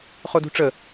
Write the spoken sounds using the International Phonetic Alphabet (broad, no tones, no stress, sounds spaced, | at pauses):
χ o d ṳ ʈ͡ʂ ə